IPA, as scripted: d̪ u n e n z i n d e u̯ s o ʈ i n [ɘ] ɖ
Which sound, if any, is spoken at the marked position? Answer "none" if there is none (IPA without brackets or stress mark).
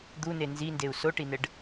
ɘ